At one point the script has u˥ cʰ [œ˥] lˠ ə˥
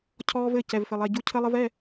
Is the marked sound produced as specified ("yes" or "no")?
no